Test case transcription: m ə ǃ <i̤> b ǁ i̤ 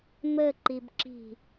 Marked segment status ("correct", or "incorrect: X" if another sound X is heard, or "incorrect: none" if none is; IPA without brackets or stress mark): incorrect: i